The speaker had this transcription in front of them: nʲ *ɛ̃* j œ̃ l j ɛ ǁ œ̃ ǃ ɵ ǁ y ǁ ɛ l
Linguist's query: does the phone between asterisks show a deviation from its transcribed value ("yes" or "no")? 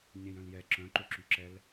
no